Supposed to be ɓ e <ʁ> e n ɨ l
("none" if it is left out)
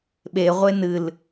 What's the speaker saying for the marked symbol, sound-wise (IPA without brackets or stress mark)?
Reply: ʁʷ